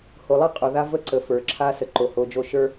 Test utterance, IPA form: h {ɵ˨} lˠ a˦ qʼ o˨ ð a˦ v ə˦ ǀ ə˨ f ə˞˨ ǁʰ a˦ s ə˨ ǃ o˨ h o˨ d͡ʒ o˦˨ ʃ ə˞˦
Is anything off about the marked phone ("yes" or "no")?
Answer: yes